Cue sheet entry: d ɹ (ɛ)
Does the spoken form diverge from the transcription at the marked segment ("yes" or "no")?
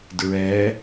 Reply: no